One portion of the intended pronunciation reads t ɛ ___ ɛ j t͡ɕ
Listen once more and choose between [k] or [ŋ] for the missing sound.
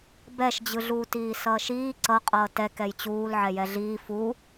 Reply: k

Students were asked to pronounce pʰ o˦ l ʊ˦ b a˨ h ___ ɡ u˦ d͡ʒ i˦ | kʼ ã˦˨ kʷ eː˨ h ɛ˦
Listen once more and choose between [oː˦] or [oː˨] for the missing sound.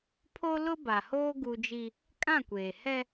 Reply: oː˦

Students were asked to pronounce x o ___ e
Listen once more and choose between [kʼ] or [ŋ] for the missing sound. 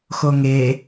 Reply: ŋ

